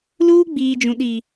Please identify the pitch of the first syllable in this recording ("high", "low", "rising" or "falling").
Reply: high